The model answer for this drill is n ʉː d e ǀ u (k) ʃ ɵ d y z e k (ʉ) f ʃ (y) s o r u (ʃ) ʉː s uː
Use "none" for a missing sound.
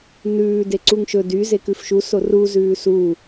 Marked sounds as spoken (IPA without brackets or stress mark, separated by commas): ŋ, ʉ, u, z